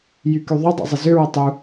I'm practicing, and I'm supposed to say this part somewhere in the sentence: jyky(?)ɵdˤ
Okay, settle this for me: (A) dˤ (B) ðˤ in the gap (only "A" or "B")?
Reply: B